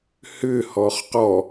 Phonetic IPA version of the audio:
h ʏ h ɔ χ q ɔ

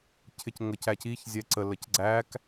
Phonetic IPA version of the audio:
cʰ ɪ c ŋ ə c æ c i ç zʲ ɛ ǀ ə l ə c ɡ͡ǀ æ k

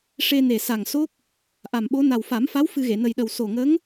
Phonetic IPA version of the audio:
ʂ e˧ n e˨˩ s a˨˩ ŋ s o˦˥ k̚ | ʔ a˨˩ m ɓ o˧˥ n a˨˩ w f a˨˩˦ m f a˧˥ w f ɨ˧ ɣ e˨˩˨ n ə˨˩ j ɗ ə˨˩ w s o˨˩ ŋ ə˧˥ ŋ

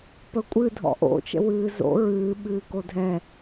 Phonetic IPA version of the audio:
p ə kʷʼ ɨ dʱ ɔ̰ ʔ o̰ t͡ʃ ə̰ w ɨː z o̰ ɹ ɨː ɓ ɨː k o dʱ ɛ

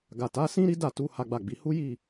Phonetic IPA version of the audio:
ɡ a˨ t a˨˦ s ĩ˦ ɾ i˦ d a˦˨ t u˨˦ h a˦ ɡ͡b a˦˨ ɡ͡b i˨˦ h u˦ j i˦˨

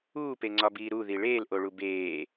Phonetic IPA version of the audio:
uː p e ŋ͡ǀ ɒ b iː ɾ u ð i ɭ eː l ʔ o ɭ u b eː

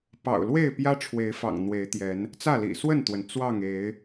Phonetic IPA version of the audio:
p ɑ̰˨˩ ʊ̯ l w e˥˨ ɪ̯ p j ä˦ ʈ͡ʂʰ w e˨˦ ɪ̯ f ɑ̰˨˩ ŋ n̪ w e˨˦ ɪ̯ t̪ j ɛ˨˦ n | t͡s ä˥˨ l ḭ˨˩ s w ə˥˨ n t̪ w ə˩ n t͡s w ɑ˥˨ ŋ e˨˦ ɪ̯

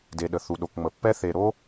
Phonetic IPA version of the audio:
d e˨ ɗ ə˨ θ u˨ ɗ o˨ k ŋ͡m ə˨ pː ɛ˦ θ e˨ ɾ o˦

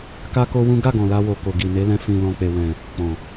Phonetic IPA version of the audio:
k a˦ k o˦ w ũ˦ ɡ a˦˨ ɡ ɔ̃˨ l a˧ w o˨ k o˨ ɡ i˨ n e˨˦ l ɛ̃˧ f ĩ˨ l ɔ̃˨ k͡p e˨ w ɛ̃˨ | k͡p ɔ̃˨

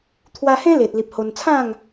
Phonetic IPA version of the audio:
t̪ʰ w a˧ h ẽ˦ l e˨ t̚ l i˨ p̚ h o˧ n t͡sʰ ã˥˧ ŋ

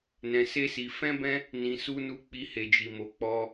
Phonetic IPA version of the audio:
n ɛ̃˧ s e˦ s i˧ f ɛ̃˦ b ɛ̃˦ | n ĩ˧ s u˦ n u˧ k͡p i˦ h e˧ d͡ʒ i˧ m o˧ k͡p ɔ˦

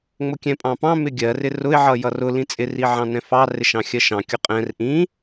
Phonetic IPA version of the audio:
ŋ͡m ʊ kʲ ɛ̃ pʼ ɑ̃ p ɑ̃ m ɪ ɡʲ ɜ r ɪ r ʊ ɪ̯ ʕ ʌ j ʌ r ʊ l ĩ t͡sʼ ɪ r i ʕ ɑ̃ n ɛ̃ f ɑ r ɪ ʃ ɑ̃ xʲ ɜ ʃ ɑ̃ kʲ ʊ qʼ ɛ̃ r ʔ ĩ

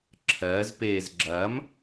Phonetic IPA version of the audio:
ǁʰ ɜ z p eː z ɡ͡ǁ ɐː m

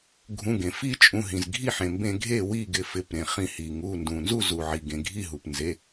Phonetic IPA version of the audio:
ɡʱ ũ˩˧˩ ɡ ẽ˩ f i˥˩ t͡ʃʼ ũ˩˧˩ ɦ ĩ˩ z ɡʱ i˥˩ ħ ẽ˩ m b ẽ˧˩˧ ɡʱ e˥˩ w i˥˩ ɡ ɪ˩˧˩ f ɪ˩˧˩ p ɾ ẽ˩ χ ĩ˧˩˧ h i˩ ŋ u˩˧˩ n d ũ˩ n z u˥˩ z u˩ ʕ i˩ ɡ ẽ˩ ɡʱ i˥˩ ɦ u˩ p n z e˩˧˩

